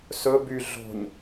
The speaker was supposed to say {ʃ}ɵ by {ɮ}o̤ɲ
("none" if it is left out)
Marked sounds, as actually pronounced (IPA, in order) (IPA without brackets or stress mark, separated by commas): s, ɮ